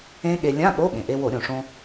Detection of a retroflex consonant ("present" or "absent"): present